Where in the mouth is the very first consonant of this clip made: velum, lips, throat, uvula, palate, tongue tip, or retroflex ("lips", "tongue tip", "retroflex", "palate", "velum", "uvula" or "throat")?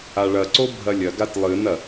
retroflex